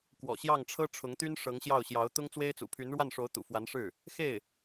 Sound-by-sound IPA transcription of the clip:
kwɔ̰˨˩ɕjɑ˥˩ŋʈ͡ʂʰɤ˥ ʈ͡ʂʰʊ˧˥ŋt̪y˥n ʂɤ˧˥ŋɕjɑ˥˩ʊ̯ ɕjɑ˧˥ʊ̯ t̪ʊ˥ŋt͡swe˥ɪ̯t͡sṵ˨˩ pʰy˧˥nɻwa˥˩nʂo˧˥ʊ̯t̪ṵ˨˩ fwa˧˥nʂɻ̩˥˩ | xe˥˩ɪ̯

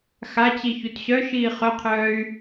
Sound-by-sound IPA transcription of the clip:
xat͡ɕi çutɕœʃiː χœqʰœːy̯

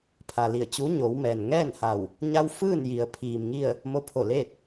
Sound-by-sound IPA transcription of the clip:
pʰa˩li˧˩ə̯t͡ɕu˧˥ ɲo˩˧wmɛː˩n ŋɛː˥˨nha˧˩w | ɲa˧w fɯː˥˨n ji˩ə̯pʰiː˩mŋi˥˨ə̯ | mo˧pʰo˧˩leː˥˨t̚

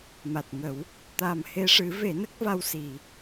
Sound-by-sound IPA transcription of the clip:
ma˨˩t̚ŋə˨˩˦w | t̪a˨˩mhe˧ʂɨ˨˩˦ ve˨˩˦nə˦˥k̚va˧w si˨˩˨

